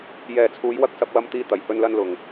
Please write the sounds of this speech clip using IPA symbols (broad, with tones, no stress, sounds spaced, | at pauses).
j ɛː˨ t͡sʰ uː˨˧ j w ɐ˧ k̚ s ɐ˧ p̚ w ɐ˧ m t̪ iː˧ t̪ ɐ˨˩ j h ɵ˧ n l ɐ˧ n l ʊ˨ ŋ